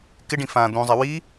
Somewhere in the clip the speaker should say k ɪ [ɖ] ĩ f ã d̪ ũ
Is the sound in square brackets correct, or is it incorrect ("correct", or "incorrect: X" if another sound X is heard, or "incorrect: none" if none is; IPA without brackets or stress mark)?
correct